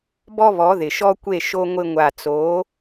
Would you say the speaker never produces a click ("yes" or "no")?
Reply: yes